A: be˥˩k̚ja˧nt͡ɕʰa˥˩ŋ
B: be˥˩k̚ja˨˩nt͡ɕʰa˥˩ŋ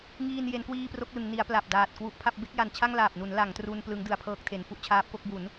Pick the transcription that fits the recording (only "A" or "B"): B